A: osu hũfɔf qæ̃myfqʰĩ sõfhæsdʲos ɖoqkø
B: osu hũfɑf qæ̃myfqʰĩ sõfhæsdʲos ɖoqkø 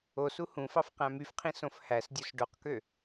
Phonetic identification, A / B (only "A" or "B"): B